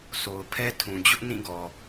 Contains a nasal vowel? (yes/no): yes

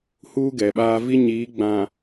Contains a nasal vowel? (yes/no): yes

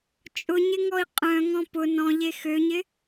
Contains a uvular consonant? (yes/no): yes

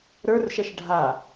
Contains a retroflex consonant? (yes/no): yes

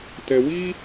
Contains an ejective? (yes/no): no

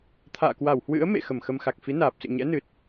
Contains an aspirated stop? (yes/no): yes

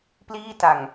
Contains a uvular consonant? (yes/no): no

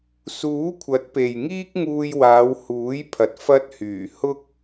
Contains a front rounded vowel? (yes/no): yes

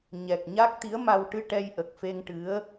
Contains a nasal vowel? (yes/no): no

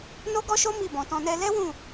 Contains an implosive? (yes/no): no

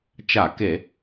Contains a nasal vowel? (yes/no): no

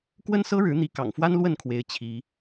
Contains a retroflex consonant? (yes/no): yes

